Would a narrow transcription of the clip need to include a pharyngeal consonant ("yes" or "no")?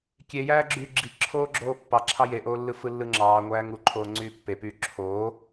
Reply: no